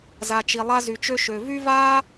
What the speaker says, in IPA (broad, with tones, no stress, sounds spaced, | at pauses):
z a˨ t͡ʃ i˨ lˠ a˧ z y˨ t͡ʃ ø˧ ʃ ø˨ v y˦ v aː˦